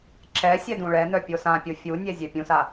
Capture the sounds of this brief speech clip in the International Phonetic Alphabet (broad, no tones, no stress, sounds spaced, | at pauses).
ǁ ɛ sʲ ɛ d ũ ɭ ɛ n œ pʲ o s ã pʲ o fʲ u nʲ ɛ zʲ ɛ pʲ ũ s a